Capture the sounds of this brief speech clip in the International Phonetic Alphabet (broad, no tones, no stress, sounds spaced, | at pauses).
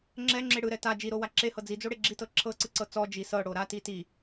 ŋ͡ǁ ɛ ŋ͡ǁ e ɽ ɯ ɾ ɛ t a d͡ʒ i ɾ o w a ǁ e h ɤ d͡z i d͡z o ɽ e ɡ͡ǁ i t ɤ ǁʰ ɤ ǀ ɯ ǀ ɤ t͡s ɔ d͡ʒ i s ɤ ɽ o ɾ a t i t i